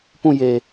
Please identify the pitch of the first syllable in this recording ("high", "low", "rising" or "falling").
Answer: falling